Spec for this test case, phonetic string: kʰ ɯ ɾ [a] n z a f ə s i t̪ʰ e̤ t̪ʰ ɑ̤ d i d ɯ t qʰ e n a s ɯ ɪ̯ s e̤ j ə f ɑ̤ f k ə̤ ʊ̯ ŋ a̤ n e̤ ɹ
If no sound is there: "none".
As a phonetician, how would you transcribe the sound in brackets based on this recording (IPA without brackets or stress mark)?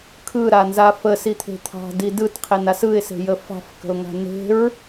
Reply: a